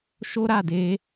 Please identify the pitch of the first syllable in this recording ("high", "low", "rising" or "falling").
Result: high